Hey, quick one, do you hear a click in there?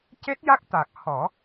no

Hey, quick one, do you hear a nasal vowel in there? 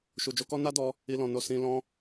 yes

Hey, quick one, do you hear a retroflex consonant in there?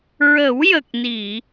no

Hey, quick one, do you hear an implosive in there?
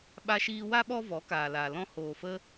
yes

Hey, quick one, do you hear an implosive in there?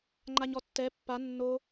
no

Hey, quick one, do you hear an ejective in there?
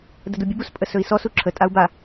yes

